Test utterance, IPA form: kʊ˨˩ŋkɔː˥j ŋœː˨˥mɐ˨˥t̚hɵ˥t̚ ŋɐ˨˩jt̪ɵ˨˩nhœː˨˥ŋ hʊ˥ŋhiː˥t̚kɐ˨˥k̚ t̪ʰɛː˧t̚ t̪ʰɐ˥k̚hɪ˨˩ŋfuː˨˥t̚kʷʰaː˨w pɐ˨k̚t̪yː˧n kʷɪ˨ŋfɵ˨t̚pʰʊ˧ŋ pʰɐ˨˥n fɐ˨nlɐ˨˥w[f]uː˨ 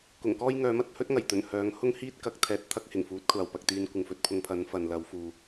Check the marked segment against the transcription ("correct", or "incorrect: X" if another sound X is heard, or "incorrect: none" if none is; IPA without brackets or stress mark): correct